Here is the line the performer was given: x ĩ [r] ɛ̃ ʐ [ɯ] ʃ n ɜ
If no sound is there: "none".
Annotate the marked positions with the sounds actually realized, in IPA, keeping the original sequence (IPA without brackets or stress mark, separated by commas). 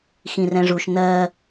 r, u